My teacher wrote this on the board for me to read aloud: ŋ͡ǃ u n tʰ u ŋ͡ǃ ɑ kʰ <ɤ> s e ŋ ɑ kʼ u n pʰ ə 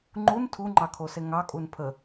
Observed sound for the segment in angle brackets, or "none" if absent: o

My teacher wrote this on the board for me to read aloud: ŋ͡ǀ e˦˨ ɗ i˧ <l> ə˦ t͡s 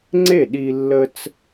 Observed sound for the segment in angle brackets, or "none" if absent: lː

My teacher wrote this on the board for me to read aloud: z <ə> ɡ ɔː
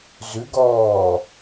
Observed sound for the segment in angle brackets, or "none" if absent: ʉ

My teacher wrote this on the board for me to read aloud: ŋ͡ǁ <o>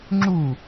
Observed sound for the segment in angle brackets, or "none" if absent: u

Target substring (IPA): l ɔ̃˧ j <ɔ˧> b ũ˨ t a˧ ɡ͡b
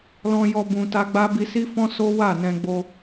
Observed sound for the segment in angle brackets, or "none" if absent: ɔ˧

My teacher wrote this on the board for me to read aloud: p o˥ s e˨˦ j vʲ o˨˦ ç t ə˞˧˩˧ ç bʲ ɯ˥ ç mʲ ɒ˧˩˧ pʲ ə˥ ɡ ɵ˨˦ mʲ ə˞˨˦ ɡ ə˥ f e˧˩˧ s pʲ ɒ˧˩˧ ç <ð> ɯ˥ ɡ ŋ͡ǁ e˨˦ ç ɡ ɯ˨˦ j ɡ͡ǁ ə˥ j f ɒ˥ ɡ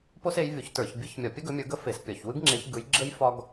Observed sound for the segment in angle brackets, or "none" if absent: w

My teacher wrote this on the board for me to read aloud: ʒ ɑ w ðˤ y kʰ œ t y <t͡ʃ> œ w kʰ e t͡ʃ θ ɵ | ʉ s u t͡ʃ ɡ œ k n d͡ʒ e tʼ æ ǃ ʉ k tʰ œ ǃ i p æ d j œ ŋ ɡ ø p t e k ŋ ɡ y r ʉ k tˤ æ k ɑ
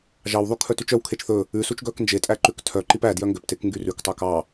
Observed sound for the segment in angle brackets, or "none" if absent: t͡ʃ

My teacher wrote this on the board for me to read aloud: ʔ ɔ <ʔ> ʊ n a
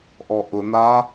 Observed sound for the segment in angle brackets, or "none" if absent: ʔ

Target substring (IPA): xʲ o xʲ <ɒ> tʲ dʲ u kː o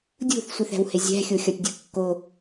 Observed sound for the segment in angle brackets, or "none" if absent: ɒ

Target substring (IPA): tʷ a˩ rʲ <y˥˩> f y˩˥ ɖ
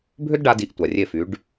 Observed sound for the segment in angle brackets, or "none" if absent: e˥˩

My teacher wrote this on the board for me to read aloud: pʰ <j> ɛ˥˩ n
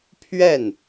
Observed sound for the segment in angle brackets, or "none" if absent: ɥ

